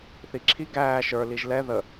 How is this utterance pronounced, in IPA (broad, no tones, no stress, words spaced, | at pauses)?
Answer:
θiǁʰi ɡæː ʃə˞ liʒlɛ ðə